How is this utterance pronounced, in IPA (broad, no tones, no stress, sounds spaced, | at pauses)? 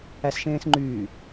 æ s ʃ ẽː s ŋ͡ǃ yː